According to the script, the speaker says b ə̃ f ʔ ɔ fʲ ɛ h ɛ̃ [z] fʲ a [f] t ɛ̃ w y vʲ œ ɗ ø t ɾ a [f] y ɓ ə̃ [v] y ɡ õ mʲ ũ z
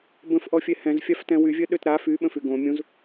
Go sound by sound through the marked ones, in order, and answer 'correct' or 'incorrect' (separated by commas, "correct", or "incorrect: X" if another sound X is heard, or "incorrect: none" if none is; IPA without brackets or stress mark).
correct, correct, correct, incorrect: f